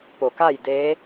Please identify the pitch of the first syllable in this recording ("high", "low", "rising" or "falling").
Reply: low